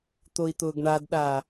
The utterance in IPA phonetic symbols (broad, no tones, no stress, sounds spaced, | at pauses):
t̪ o i̯ t̪ ʊː ɡ ɳ a d ɗ a